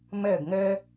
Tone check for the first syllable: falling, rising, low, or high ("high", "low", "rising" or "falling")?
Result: falling